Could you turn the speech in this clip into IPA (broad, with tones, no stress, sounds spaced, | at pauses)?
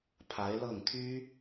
pʰ a˧˥ ɪ̯ l ɤ˥˩ ŋ t̪ʰ y˥